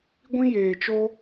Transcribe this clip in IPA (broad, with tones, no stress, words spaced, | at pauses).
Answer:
ɡʷĩ˧jeː˨t͡ʃo˧